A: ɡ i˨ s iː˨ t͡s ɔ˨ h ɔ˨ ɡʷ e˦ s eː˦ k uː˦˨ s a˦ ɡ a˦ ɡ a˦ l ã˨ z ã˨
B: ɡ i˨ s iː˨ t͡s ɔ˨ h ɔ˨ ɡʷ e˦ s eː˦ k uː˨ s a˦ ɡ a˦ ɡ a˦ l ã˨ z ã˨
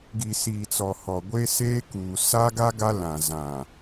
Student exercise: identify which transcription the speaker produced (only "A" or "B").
B